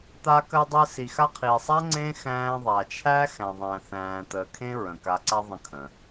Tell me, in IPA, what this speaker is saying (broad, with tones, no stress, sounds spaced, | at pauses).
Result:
t̪ a˦ k ɜ˦ dˤ əː˦ s i˨ x a˦ qʰ iː˨ sˤ a˥ ŋ͡ǀ ẽ˥ x æ̃ː˦ ðˤ a˨ t͡ʃʰ æ˥ x æ̃˨ ðˤ æ̃˨ θ æ̃ː˨ t̪ əː˨ kʰ ẽ˥ ɹ ə̃˩ k a˨ ǀ a˦ ðˤ ə̃˦ kʰ ə̃ː˩